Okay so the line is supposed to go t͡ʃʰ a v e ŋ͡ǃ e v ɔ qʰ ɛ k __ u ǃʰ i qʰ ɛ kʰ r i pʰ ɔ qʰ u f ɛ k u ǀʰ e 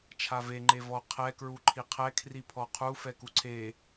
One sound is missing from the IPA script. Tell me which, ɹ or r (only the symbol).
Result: ɹ